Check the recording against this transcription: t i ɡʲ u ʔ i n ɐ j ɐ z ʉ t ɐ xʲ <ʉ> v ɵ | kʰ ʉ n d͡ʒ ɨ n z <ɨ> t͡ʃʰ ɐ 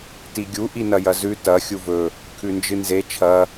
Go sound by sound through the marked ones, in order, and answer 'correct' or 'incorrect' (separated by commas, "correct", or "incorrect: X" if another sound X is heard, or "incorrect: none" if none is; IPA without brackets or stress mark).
incorrect: u, incorrect: e